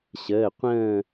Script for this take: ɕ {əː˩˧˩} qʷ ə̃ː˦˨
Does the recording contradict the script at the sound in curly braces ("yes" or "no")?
no